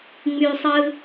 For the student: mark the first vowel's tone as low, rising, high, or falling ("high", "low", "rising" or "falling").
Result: high